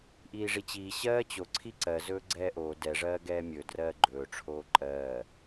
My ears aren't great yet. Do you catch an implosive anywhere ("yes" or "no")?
no